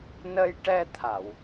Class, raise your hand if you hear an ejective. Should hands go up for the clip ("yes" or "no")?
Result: no